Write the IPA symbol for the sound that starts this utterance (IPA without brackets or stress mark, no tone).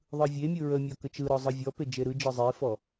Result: ðˤ